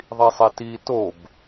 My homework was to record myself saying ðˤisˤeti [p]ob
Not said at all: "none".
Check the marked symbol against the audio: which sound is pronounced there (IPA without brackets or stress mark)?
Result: t